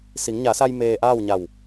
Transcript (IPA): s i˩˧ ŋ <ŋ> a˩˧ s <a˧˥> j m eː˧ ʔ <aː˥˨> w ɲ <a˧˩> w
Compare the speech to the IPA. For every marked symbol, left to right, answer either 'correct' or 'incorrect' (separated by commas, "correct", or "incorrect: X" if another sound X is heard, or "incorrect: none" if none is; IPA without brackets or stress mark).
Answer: incorrect: ɲ, incorrect: a˧, correct, correct